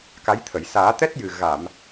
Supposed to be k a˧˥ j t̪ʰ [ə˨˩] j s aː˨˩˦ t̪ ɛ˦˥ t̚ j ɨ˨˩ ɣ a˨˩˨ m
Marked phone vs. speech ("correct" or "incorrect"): incorrect